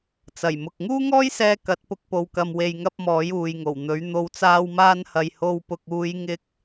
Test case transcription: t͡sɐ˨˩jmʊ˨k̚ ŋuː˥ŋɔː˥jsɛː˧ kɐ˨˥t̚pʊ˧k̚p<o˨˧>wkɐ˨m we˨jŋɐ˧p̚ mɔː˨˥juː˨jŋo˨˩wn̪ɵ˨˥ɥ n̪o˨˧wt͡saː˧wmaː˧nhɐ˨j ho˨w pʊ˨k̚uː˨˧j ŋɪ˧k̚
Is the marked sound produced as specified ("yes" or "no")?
no